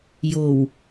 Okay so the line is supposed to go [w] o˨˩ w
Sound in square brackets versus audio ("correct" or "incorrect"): incorrect